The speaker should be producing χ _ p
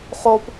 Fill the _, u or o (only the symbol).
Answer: o